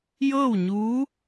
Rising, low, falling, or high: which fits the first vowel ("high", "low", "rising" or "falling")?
falling